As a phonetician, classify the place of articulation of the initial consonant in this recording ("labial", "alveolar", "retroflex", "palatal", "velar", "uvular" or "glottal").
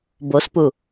labial